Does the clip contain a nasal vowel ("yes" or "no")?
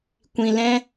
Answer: yes